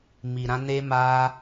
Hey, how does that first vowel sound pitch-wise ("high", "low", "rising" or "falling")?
low